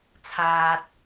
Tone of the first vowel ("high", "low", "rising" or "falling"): low